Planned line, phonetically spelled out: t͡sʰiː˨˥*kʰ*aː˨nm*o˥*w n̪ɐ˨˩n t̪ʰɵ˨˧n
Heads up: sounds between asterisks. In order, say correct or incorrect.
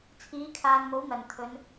correct, incorrect

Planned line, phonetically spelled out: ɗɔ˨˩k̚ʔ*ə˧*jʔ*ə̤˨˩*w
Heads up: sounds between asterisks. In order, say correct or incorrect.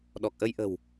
correct, correct

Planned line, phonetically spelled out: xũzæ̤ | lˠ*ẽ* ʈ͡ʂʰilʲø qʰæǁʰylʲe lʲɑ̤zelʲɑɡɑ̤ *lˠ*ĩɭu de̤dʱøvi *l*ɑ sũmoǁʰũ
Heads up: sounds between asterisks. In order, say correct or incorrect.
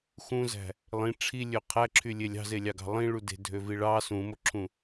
incorrect, correct, incorrect

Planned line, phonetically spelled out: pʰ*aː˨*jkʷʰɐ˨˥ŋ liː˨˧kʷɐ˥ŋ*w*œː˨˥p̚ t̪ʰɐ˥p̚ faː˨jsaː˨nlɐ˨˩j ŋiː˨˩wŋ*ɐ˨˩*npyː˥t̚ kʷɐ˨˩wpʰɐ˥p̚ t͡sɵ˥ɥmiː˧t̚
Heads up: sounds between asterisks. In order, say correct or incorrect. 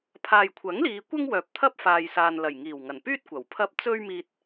correct, correct, correct

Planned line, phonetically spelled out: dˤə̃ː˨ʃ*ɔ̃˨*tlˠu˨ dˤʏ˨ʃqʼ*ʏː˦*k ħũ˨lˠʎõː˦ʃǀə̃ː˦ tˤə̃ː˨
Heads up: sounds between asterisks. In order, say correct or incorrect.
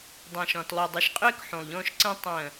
correct, correct

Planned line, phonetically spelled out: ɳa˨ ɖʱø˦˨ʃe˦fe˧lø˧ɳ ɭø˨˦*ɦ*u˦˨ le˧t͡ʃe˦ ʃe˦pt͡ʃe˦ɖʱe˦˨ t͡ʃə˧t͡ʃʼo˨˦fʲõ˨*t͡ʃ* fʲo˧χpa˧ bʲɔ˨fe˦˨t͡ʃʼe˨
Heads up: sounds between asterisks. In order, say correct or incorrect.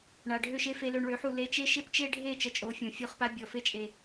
incorrect, incorrect

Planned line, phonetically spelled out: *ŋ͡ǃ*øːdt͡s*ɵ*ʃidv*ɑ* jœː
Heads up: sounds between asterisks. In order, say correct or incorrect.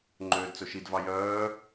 correct, correct, correct

